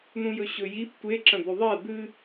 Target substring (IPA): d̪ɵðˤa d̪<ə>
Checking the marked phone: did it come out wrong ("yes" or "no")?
yes